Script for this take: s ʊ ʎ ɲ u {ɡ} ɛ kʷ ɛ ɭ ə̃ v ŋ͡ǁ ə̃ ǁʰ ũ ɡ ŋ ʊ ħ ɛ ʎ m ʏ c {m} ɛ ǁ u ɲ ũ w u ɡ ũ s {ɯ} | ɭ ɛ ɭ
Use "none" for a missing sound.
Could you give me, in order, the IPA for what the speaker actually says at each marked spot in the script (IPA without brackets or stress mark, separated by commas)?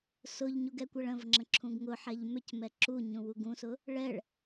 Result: ɡ, m, ʊ